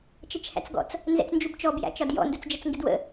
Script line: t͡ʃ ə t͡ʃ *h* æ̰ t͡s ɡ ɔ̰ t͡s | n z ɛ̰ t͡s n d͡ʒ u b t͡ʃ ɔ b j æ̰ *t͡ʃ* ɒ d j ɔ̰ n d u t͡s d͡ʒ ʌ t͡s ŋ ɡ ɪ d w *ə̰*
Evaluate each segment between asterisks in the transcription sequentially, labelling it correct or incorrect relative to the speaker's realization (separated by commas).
correct, correct, correct